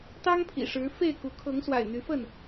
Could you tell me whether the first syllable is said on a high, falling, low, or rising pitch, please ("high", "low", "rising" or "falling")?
high